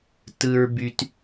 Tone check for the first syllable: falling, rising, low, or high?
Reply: low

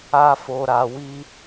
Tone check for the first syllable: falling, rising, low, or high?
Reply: high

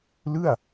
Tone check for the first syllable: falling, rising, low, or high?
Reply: falling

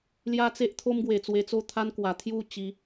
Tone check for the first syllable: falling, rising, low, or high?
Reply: high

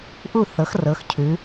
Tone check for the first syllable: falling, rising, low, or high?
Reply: falling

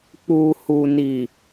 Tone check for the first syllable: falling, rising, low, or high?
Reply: low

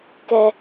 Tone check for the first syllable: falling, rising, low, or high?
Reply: high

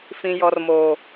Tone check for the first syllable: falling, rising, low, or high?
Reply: low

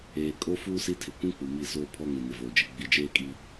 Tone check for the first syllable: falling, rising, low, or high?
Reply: low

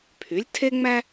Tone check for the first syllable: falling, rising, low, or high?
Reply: rising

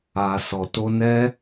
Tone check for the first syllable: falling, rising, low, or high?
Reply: low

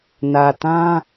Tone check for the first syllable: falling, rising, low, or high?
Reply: low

